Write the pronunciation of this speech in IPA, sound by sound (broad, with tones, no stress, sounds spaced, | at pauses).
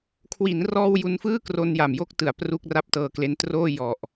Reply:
kʰ w i˩˦ n r ɔː˧ w j u˧ n f ɯː˥˩ k r o˧ n j a˨˩ m j o˥˩ k̚ t ɯ˨˩ a̯ p r u˥˩ k̚ r a˦˥ p̚ t ɤː˧ k l e˦˥ n t r oː˥˩ j ɔ˨˩ ʔ